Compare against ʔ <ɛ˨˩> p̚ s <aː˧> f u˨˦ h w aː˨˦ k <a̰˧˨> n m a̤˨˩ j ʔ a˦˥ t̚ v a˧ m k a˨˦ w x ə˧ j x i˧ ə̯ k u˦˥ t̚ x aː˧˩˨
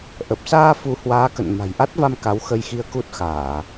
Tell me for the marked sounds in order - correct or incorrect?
incorrect: ə˨˩, correct, incorrect: ə̰˧˨

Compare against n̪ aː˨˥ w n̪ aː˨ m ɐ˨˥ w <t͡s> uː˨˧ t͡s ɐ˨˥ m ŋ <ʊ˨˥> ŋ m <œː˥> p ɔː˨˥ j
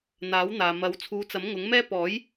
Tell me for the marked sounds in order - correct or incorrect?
incorrect: t͡sʰ, correct, incorrect: ɛː˥

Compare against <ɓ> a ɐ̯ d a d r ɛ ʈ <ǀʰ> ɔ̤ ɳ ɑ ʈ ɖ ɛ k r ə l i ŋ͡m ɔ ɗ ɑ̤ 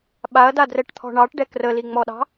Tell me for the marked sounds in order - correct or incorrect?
correct, incorrect: t̪ʰ

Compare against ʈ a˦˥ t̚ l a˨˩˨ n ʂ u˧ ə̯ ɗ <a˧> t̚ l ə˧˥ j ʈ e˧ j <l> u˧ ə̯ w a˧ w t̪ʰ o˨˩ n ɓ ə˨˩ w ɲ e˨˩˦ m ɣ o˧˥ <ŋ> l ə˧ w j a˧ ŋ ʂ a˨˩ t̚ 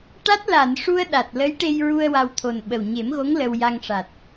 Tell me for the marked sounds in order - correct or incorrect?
incorrect: a˨˩, incorrect: ɹ, correct

